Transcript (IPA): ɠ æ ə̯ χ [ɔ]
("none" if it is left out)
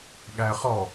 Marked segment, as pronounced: ɔ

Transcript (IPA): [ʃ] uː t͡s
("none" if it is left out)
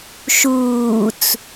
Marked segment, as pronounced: ʃ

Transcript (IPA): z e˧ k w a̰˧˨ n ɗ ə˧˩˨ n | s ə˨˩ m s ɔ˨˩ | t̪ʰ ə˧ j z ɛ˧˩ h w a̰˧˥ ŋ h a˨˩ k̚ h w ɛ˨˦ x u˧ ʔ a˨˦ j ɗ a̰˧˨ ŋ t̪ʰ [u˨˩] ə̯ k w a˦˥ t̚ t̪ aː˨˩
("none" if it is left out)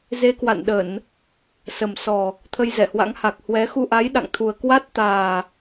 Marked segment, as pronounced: u˨˩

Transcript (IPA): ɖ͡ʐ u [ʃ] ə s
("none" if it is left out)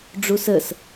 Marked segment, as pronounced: s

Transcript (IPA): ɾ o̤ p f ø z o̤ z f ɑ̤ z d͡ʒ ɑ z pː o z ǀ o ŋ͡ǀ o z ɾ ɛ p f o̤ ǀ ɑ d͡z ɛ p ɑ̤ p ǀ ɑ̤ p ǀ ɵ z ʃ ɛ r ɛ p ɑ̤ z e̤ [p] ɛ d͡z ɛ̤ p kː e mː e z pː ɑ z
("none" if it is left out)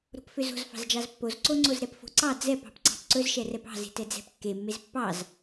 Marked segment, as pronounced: t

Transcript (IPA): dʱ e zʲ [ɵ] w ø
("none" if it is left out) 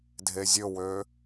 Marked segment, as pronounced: ɵ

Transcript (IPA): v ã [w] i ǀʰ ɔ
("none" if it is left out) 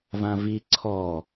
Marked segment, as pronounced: v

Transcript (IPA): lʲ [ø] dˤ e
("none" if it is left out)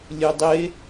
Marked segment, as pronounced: ø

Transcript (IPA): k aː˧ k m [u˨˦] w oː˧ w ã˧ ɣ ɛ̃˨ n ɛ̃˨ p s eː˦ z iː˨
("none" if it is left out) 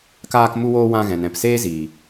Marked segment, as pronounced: u˧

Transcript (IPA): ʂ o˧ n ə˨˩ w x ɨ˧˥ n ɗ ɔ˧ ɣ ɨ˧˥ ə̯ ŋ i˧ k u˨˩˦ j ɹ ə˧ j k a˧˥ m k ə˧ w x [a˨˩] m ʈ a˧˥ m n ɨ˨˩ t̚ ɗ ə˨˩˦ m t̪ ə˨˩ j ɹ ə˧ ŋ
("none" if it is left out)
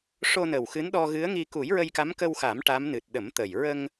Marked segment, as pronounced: a˨˩˦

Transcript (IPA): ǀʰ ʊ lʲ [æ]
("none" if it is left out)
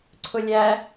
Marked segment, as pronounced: æ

